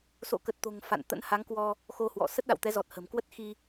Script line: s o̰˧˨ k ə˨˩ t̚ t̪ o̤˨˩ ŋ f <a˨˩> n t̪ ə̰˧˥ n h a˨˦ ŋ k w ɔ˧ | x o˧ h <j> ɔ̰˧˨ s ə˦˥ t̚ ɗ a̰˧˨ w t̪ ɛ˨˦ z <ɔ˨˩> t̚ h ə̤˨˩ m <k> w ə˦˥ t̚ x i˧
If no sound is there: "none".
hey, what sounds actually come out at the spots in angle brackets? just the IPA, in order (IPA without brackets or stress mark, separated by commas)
a̰˧˨, w, ɔ˨˩, k